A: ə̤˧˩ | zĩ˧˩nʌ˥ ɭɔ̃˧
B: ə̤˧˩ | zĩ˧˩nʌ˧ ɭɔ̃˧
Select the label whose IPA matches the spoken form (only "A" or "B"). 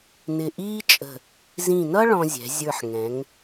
A